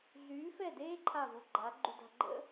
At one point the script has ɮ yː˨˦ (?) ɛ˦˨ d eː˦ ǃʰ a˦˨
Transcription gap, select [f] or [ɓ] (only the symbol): f